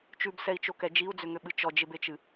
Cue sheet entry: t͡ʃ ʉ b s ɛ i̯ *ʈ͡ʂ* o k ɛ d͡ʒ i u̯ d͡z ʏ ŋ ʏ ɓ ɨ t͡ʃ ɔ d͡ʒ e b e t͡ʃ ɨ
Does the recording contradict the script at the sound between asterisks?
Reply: yes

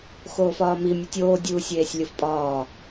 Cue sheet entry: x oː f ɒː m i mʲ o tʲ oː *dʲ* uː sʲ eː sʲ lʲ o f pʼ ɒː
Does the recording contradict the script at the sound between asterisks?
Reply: no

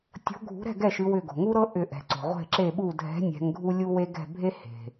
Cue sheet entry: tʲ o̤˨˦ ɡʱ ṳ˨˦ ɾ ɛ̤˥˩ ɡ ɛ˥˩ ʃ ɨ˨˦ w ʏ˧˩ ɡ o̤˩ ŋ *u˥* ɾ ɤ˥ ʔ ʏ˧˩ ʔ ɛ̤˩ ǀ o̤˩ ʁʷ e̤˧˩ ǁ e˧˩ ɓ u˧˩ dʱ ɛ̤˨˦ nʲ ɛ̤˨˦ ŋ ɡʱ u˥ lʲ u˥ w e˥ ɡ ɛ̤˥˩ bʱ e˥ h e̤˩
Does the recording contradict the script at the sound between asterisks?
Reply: no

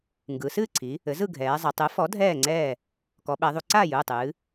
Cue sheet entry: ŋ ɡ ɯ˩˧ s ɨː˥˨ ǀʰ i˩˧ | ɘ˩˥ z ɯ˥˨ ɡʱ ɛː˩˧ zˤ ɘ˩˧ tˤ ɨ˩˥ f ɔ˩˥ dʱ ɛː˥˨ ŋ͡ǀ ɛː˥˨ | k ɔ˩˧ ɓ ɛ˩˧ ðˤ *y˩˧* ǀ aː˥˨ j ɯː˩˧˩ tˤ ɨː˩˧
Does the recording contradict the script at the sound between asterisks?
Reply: yes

